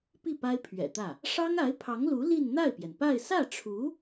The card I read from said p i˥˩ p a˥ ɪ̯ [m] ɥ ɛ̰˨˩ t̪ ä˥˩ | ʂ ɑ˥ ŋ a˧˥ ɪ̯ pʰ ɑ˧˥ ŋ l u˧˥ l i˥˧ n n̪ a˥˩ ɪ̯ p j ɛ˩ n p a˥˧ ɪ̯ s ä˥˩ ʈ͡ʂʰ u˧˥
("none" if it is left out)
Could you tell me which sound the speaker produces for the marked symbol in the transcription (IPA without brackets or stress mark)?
pʰ